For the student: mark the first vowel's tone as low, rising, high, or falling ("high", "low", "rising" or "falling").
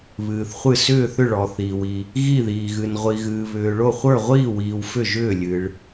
low